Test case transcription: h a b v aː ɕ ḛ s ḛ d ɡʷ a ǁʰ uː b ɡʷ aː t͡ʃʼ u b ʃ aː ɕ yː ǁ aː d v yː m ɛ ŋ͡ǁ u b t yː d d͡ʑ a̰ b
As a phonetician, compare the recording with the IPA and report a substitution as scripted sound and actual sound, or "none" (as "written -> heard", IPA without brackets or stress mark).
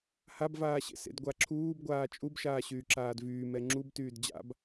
none